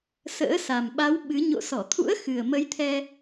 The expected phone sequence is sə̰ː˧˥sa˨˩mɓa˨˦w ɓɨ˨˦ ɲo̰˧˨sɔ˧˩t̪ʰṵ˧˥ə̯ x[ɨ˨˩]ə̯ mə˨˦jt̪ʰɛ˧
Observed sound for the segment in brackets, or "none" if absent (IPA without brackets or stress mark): ɨ˨˩